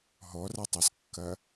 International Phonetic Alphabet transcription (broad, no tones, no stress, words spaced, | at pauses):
ɦɔratˤaskːɐ